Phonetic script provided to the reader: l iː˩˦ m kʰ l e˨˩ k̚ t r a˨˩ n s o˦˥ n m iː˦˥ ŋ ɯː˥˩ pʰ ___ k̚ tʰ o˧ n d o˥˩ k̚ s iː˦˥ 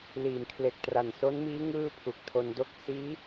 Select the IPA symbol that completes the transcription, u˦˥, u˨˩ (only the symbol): u˨˩